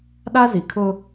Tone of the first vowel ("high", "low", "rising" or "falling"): high